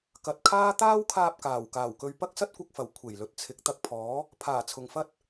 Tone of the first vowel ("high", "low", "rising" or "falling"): low